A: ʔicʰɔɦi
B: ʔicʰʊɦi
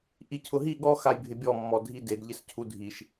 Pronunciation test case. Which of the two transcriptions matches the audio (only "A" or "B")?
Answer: B